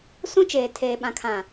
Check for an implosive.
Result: present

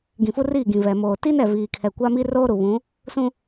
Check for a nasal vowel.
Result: present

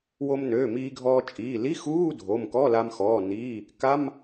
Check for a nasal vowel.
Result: absent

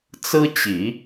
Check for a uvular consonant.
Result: absent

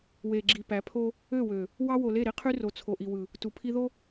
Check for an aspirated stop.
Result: present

